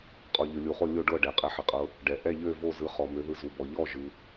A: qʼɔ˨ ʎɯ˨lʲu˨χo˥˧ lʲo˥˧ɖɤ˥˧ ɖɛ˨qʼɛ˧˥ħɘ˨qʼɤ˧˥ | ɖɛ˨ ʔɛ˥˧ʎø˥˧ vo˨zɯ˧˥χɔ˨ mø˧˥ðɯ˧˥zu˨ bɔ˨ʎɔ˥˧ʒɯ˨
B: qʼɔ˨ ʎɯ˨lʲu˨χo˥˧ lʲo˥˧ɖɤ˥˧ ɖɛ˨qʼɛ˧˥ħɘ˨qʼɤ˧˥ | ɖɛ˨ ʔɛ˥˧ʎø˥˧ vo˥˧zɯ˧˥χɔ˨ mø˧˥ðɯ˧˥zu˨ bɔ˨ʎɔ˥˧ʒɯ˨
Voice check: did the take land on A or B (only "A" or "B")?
B